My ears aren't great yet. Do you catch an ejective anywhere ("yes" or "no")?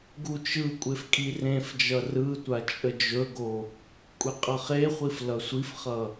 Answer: yes